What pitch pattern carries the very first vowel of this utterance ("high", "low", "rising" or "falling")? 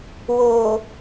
low